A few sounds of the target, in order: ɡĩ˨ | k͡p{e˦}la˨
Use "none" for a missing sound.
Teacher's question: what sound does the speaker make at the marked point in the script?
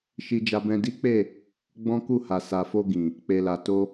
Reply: e˨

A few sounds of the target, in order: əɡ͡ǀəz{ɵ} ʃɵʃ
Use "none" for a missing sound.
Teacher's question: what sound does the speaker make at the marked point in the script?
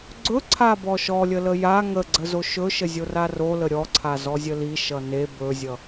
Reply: o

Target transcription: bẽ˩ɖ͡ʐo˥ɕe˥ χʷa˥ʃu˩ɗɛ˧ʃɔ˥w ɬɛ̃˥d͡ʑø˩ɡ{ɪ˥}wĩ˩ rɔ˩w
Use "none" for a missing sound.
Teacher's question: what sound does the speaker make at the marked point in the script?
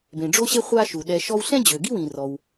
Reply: i˥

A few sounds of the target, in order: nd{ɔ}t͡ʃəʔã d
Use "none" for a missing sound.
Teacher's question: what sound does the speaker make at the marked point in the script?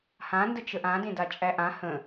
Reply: ə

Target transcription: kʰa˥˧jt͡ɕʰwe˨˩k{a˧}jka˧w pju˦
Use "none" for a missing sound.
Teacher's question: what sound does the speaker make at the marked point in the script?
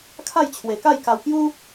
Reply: a˥˧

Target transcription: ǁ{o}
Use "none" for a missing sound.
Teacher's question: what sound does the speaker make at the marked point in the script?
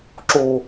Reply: o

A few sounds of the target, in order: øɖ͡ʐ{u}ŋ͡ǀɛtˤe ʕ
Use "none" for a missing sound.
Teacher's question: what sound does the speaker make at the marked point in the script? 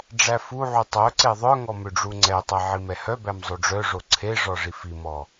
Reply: u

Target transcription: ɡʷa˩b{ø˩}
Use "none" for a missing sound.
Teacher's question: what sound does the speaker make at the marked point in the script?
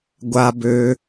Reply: ø˩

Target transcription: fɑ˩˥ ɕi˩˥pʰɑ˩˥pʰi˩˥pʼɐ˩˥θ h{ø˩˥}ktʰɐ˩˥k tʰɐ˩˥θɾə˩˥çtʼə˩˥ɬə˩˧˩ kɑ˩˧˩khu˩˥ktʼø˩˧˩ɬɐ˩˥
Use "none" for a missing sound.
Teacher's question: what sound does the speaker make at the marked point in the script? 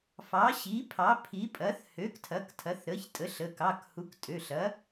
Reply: ø˩˥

